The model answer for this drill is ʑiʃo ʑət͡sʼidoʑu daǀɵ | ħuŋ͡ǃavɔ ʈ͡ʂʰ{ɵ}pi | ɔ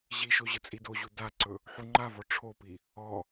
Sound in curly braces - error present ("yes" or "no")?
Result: yes